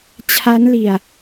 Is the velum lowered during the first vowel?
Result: no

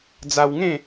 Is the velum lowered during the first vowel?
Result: no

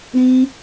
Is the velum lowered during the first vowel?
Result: yes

